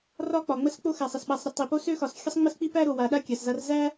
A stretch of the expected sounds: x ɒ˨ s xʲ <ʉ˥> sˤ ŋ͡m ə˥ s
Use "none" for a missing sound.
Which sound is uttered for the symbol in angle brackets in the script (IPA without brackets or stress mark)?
ə˥